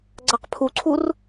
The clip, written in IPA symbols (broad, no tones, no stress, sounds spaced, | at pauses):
ɡ͡ǀ a q pʰ u ǀʰ u r